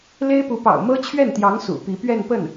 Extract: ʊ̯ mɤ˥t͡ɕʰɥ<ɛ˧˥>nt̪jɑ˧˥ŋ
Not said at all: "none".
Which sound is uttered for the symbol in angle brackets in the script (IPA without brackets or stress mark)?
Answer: ɛ˥˩